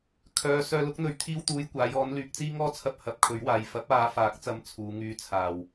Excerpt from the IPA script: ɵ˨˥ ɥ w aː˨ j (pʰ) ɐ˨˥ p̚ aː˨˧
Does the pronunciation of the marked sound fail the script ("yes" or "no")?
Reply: yes